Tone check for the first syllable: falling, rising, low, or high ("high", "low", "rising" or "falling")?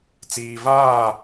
low